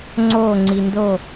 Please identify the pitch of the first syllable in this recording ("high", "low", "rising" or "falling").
falling